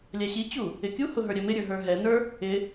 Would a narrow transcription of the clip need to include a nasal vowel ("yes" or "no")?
no